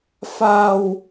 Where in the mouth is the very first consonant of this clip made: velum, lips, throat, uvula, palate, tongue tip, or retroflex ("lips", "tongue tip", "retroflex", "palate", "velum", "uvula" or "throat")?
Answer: lips